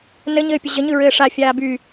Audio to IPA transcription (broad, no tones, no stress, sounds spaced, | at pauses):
n ɘ ɲ ɘː pʲ ɘ ʑ ɘ ɲ ɯ ɹ ɘː ʂ a fʲ aː b y